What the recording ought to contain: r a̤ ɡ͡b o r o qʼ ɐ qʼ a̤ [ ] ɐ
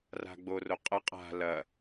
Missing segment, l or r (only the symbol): l